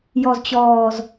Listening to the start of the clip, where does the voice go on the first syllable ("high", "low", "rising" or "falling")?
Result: low